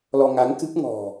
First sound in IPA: l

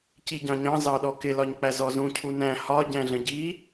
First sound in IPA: c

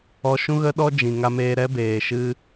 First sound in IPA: ɔ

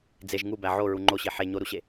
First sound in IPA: d͡z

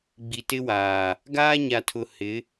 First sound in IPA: ɡ͡b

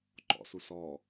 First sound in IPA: ǃ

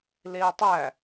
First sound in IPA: l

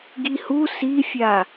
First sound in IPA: ɡ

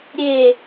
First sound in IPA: ɾʲ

